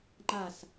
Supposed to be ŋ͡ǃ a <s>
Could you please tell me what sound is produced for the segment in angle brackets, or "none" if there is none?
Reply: s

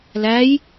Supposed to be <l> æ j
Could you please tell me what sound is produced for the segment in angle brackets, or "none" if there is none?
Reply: l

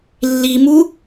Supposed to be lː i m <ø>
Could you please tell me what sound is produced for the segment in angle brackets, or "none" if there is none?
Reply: u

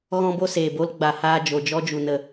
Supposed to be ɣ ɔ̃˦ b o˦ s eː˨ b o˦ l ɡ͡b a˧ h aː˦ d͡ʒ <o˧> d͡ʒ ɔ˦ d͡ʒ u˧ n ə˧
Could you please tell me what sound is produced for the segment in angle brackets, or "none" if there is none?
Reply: o˧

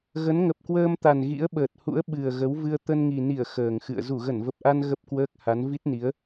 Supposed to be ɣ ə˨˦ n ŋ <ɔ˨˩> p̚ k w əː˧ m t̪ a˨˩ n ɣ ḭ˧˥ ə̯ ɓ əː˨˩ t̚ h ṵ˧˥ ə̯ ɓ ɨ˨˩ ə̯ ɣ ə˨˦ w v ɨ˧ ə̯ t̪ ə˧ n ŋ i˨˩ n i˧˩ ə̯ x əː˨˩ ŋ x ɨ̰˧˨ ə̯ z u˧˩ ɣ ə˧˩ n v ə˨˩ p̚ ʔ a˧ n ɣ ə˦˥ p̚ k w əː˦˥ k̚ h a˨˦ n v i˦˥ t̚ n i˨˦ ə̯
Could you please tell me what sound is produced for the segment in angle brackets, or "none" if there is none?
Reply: ə˨˩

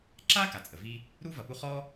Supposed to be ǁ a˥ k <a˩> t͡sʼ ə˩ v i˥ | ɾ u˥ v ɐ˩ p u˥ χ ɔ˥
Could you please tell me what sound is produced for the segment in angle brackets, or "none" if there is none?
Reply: a˩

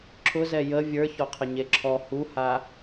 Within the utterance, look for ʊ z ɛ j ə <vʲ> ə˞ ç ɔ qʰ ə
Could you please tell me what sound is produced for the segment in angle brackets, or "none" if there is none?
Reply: vʲ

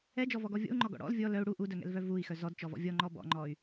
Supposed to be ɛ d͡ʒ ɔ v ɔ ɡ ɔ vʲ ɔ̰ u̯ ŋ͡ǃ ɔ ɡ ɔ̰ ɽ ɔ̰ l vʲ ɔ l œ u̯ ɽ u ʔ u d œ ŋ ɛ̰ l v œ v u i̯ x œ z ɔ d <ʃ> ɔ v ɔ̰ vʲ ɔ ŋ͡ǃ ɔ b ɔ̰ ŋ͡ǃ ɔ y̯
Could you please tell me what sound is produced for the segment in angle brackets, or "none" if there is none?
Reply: t͡ʃ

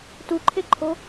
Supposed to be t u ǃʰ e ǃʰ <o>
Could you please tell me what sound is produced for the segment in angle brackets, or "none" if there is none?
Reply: o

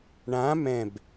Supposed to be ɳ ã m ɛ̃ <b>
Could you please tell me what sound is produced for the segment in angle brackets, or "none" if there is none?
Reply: b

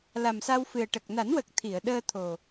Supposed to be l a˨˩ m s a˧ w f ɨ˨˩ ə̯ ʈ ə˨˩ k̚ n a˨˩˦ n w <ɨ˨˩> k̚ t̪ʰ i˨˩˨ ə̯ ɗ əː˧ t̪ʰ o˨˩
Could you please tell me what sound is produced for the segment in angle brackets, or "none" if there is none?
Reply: ə˨˩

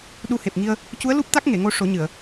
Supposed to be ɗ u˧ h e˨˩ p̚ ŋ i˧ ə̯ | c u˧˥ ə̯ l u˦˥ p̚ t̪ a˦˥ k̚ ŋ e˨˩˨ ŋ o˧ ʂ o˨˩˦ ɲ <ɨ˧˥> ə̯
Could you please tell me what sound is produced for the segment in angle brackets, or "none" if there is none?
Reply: ɨ˨˩˨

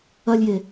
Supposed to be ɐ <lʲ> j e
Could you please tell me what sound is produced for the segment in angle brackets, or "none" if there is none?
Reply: lʲ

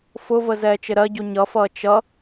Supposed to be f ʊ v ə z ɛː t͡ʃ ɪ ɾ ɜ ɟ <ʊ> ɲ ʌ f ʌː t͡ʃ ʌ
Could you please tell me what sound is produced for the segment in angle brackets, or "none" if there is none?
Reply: u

